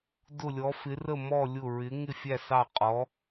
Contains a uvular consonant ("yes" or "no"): yes